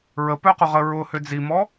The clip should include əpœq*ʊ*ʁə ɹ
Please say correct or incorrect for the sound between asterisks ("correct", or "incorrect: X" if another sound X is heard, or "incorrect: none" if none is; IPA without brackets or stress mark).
correct